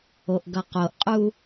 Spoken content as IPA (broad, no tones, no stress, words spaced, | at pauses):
oʔɡʌqoʔqʼu